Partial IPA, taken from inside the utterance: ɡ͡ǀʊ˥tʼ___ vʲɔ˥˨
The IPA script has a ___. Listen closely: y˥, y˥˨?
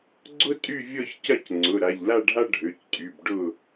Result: y˥˨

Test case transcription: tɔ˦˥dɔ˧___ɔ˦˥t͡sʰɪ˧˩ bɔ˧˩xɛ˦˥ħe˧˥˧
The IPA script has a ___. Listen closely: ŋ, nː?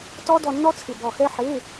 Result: nː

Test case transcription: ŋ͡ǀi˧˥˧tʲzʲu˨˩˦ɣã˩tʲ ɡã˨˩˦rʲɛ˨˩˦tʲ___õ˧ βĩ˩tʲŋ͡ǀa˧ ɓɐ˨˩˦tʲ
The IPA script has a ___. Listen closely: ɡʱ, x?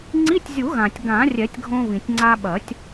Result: ɡʱ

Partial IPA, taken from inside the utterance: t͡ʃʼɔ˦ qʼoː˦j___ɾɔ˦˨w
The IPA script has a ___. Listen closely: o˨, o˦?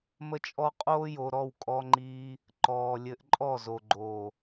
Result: o˨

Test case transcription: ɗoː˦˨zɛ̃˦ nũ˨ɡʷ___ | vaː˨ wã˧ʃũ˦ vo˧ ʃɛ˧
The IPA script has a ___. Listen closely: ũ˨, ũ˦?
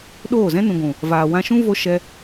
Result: ũ˨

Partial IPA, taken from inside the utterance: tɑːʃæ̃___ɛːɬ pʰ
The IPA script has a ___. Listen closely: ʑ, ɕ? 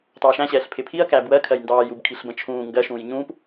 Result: ɕ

